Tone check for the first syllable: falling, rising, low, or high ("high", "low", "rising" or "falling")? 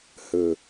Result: low